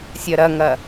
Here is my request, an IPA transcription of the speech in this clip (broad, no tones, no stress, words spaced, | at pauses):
sʲɜɾɐŋɐ